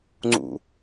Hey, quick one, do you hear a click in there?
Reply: yes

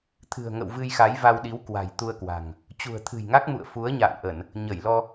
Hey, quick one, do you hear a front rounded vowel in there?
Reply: no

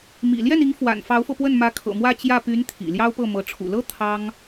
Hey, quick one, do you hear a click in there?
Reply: no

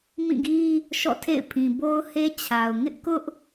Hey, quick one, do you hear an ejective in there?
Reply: no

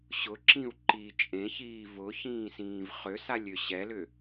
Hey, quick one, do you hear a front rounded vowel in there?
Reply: yes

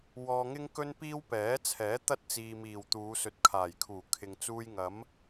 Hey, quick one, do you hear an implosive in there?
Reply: no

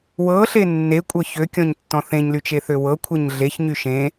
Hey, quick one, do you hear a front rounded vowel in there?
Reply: yes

